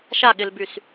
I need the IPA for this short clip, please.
ʃ a ɠ ɪ l b y s

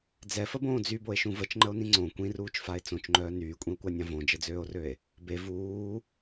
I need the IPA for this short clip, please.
d͡z ɛ f ə b õː d͡z y b o e̯ ʃ ũ v ə t͡ʃ ŋ͡ǃ ə o̯ n ĩ ŋ͡ǀ õ kʷ ĩ r uː t͡ʃ f a e̯ t͡s õ t͡ʃ ŋ͡ǃ œː n yː kʷʼ ĩ o̯ kʷ a nʲ ã v õ d͡ʒ ə d͡z øː o̯ r ø e̯ | b e v uː

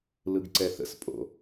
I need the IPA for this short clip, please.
l ɯ ɡ ǀ ɛ θ ə̰ s pʼ o̰

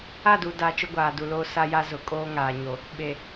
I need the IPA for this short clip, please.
a˦˨ d u˨ d a˨ t͡ʃ ʊ˦ ɡʷ aː˨ d u˨ l oː˦ s a˦ j a˦ z ʊ˨ kʼ oː˦ ŋ aː˨ ɲ o˨ | ɓ e˨

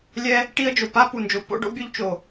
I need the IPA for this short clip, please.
lʲ ɛ˦ | ʈ i˦ ə̯ d͡ʒ o˨ p a˦ p u˨ n d͡ʒ o˨ p o̰˦ ɖ o̰˦ bʲ o˦ ʎ t͡ʃ o˨

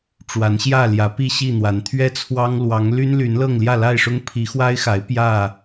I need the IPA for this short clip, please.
ʈ͡ʂ w a˨˦ n ɕ j ä˥˨ l j ä˨˦ p i˥˨ ɕ i˥˨ n̪ w a˨˦ n t̪ʰ ɥ ɛ˦ t͡sʰ w ɑ˦ ŋ l w ɑ˨˦ ŋ l y˦ n l y˨˦ n l ɤ˥˨ ŋ l j ä˥˨ l a˥˨ ɪ̯ ʂ ʊ˦ ŋ pʰ i˨˦ x w a˦ ɪ̯ x a˨˦ ɪ̯ p j ä˥˨

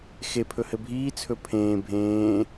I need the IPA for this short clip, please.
x e pʰ ɵ h ɘ bʱ iː t͡sʰ ɵ pʰ ẽː bʱ ẽː

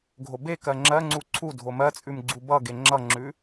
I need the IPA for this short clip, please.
ɡʱ o b e k ɜ ŋ͡ǁ ɜ ŋ͡ǀ u ǀʰ u dʱ o m ɜ t͡sʼ ʉ m ɡ͡ǀ u b ʌ ɡ e ŋ͡ǁ ʌ ŋ͡ǁ ʉ

